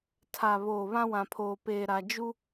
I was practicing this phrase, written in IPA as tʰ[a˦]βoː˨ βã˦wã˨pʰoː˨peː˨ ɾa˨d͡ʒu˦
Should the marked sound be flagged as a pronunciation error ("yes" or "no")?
yes